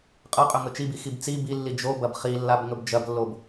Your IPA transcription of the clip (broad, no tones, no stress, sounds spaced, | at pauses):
qʼ ɐ qʼ ɵ ŋ ɵ t͡ʃ i b i x i b t͡s i b i lː i d͡ʒ o b ɐ b χ i lː a b ŋ ɵ b d͡ʒ ɐ b lː o b